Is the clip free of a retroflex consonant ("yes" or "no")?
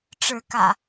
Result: no